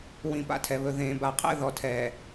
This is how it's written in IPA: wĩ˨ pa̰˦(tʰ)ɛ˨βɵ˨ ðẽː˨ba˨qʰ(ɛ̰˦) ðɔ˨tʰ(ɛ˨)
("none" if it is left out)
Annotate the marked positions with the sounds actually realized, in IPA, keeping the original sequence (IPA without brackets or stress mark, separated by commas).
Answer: tʰ, ɛ̰˦, ɛː˨